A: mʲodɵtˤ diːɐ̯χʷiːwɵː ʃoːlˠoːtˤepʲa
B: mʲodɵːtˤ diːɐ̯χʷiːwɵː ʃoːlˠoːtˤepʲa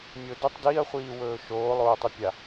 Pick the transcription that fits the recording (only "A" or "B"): A